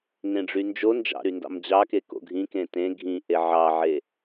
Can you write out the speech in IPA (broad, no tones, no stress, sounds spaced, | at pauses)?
ŋ ẽ ɖ͡ʐ y n d͡ʒ o n d͡ʒ ɑ̰ ɾ y n d ɑ̰ m d͡ʑ ɑ k e k o̰ ɡʱ ĩ k ẽ t ẽ ɡʱ ĩ ʔ e ʕ ɑ ʕ e